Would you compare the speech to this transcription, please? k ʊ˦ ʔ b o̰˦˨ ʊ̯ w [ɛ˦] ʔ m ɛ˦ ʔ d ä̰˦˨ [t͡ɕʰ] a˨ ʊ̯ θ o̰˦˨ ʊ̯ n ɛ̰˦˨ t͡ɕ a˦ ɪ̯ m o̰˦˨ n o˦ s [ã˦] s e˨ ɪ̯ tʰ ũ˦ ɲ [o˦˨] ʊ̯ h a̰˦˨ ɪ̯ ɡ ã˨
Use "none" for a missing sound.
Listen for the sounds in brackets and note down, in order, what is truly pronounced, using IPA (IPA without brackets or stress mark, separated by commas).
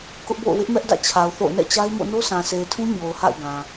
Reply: ɪ˦, t͡ɕʰ, ã˨, o˨